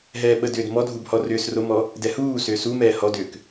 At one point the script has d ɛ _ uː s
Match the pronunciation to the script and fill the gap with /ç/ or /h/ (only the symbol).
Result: h